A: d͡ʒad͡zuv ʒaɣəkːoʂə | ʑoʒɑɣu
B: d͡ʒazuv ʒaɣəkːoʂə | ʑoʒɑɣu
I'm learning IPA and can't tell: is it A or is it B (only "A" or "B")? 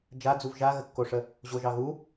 A